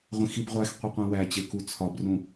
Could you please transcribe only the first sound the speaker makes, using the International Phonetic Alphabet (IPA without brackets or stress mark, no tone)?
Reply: ʁʷ